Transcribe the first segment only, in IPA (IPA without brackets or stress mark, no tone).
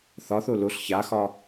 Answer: θ